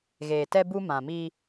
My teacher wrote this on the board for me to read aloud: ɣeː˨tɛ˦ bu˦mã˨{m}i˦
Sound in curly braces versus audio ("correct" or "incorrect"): correct